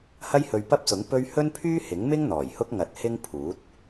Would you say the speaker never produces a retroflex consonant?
yes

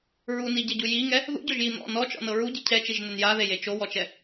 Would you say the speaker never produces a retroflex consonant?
yes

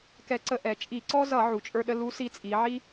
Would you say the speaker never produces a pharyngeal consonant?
no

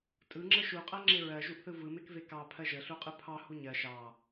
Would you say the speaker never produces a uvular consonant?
no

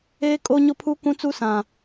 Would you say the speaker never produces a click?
yes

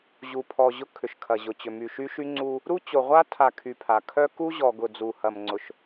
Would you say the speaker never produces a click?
no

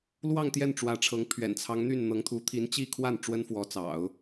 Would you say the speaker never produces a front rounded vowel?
no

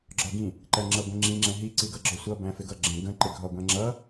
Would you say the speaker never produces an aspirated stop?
yes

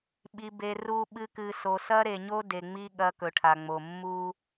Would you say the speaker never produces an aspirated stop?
no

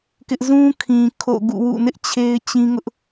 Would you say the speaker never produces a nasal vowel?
no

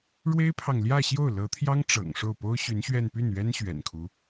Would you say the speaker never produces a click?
yes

